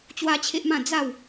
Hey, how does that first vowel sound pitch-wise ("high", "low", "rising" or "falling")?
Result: high